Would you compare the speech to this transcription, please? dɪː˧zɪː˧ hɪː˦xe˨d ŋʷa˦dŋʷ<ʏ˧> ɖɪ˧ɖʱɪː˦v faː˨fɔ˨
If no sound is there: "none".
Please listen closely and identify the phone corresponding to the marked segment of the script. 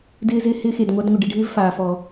ɪ˧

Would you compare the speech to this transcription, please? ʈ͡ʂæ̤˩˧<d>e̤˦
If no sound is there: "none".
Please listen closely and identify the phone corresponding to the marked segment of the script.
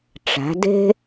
d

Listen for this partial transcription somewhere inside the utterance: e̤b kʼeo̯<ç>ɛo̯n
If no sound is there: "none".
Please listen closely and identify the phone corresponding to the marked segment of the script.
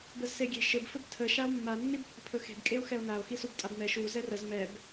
x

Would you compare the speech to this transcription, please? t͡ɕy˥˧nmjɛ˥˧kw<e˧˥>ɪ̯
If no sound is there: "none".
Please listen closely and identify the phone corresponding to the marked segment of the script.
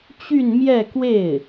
e˥˩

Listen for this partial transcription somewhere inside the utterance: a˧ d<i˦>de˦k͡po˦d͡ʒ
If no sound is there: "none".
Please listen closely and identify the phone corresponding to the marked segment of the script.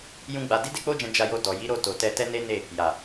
i˦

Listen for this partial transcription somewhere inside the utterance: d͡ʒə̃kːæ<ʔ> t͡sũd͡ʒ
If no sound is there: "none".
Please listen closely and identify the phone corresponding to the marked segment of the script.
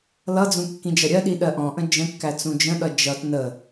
none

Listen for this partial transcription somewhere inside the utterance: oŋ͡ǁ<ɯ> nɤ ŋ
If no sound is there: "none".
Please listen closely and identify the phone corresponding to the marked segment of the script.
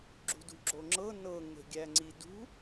ɤ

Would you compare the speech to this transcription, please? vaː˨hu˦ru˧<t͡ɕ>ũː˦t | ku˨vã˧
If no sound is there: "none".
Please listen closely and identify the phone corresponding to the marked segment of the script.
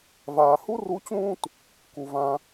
t͡ɕ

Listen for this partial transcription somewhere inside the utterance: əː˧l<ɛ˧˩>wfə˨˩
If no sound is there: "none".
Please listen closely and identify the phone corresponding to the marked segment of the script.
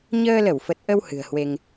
ə˧˩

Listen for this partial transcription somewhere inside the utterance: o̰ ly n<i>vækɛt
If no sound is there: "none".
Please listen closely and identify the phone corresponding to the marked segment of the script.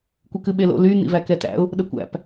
ḭ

